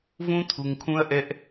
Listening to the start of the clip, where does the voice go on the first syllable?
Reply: high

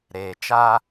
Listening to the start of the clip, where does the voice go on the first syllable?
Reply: low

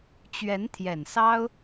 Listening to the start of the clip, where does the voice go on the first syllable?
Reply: rising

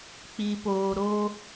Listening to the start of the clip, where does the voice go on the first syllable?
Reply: low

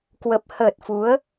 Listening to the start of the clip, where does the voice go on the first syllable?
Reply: low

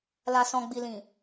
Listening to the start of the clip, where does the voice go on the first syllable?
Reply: low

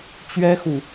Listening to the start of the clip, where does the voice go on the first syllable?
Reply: high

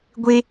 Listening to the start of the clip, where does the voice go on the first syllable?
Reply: high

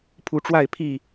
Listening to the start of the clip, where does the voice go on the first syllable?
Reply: rising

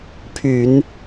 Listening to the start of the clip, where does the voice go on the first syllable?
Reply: low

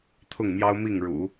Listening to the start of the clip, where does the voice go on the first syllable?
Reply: falling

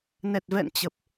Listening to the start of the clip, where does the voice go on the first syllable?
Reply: low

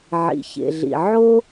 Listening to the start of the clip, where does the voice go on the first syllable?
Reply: low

